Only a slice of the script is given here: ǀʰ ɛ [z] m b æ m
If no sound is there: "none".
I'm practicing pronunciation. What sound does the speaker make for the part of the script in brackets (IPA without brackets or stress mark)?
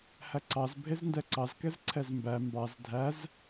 z